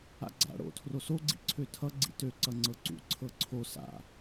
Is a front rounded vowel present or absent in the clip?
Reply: present